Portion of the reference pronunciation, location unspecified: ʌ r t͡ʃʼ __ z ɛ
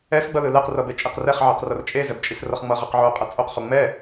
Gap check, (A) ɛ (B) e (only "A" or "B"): B